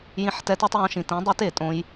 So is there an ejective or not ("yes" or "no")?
yes